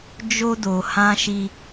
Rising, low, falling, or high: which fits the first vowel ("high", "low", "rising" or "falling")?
high